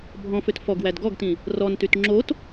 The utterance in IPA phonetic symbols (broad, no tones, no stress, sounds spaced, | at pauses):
bʱ ɔ̃ f ø t f ɔ ɡ w æ d ɡ ɔ ɡ t ĩ | r ɔ n t y t ŋ͡ǁ o t